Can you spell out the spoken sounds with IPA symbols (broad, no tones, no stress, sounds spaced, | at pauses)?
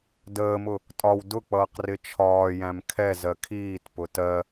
d əː m ʊ | tʼ ɒ w d ʊ k͡p ʌː q r ɪ t͡ʃʰ ɒː j æ̃ m kʰ ɛ z ɜ kʰ iː t p ʊ t ɜ